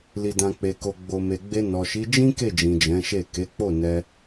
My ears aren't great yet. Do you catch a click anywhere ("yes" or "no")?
no